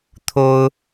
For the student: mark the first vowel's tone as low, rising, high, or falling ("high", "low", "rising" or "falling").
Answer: high